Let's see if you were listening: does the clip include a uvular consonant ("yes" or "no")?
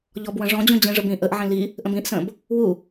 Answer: no